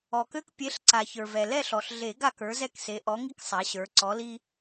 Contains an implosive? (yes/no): no